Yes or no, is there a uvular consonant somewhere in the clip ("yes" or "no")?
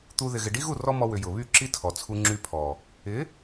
no